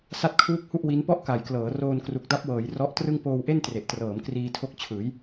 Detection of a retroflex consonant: absent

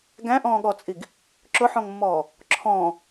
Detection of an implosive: present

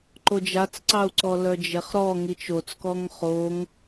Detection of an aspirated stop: absent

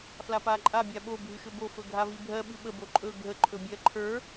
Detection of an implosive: present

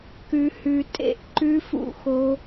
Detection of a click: present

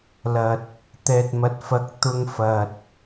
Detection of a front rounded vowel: absent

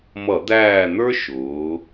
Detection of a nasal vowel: absent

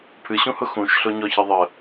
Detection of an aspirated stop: present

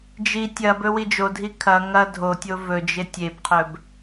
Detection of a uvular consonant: present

